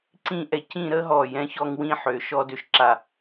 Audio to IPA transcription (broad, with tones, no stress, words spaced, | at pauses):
ǀĩ˥ʔɛ˧˩ cĩ˥˧ɾə˥ɦɔ˧˩ jɛ̃˥çɔ˥ŋwĩ˥ ħø˩˧ ʃɔ˥ dø˧ʃǁa˧˩